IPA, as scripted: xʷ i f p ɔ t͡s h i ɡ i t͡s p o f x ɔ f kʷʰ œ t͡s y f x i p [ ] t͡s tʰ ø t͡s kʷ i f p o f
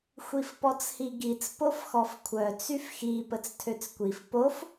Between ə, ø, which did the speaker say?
ə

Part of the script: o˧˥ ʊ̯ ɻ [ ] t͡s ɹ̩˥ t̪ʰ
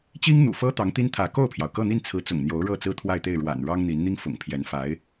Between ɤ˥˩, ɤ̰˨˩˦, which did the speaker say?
ɤ˥˩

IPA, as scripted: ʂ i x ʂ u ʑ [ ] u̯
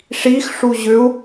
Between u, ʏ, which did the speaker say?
ʏ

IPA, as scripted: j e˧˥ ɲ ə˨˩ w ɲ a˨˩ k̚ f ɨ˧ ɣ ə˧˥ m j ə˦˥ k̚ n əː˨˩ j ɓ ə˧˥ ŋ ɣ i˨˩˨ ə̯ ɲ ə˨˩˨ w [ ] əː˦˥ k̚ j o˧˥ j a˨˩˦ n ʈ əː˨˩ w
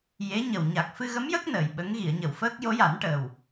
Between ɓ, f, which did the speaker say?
f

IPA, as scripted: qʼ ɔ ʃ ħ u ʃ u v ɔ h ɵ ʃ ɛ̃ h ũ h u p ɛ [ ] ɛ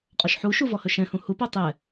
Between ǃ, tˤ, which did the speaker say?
tˤ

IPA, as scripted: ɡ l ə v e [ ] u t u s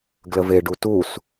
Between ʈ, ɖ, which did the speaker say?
ɖ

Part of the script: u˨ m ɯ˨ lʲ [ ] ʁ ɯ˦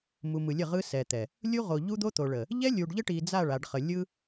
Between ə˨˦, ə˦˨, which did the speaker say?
ə˦˨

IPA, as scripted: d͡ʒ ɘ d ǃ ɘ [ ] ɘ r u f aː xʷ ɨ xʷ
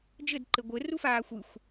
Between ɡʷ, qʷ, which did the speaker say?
ɡʷ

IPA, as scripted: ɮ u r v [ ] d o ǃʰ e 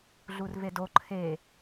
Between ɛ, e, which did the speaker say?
e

